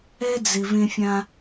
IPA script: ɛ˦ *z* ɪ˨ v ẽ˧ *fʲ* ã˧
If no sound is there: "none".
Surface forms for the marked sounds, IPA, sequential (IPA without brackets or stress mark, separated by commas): d͡z, fʲ